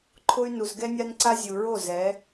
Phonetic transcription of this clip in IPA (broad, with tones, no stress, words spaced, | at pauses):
ǃʰʊ˦y̯ nu˨zɡɛ˦nʲa˦nǀa˦ zʲu˨ɹo˦˨zɛ˨˦